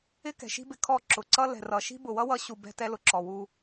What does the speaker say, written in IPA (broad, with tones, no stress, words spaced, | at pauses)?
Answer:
ɪ˦kɛ̤˨ʃi̤˦bɪ˧ kʰɔ˦˨ǁʊ˨ǀʌ˦ lɛ̤˨rʌ˨ʃi̤˦ bʊ˨wʌ˦wʌ˧ ɕu˨ bɛ̤˧ tɛ˧lʊ˨ ǁɔ˨ wu˧